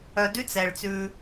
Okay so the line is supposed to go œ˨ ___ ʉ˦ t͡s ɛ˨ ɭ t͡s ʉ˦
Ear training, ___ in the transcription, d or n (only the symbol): d